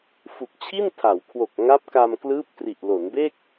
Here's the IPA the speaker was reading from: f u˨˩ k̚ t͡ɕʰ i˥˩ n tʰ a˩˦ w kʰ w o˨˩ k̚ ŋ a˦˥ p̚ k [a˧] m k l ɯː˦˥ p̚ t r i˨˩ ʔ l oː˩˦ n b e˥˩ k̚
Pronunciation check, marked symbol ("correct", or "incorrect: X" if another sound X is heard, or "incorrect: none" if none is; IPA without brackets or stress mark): correct